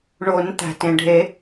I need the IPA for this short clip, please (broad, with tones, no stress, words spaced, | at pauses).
ɳo˨˩˦n t̪æ̤˩tẽ˩ɖʱe˨˩˦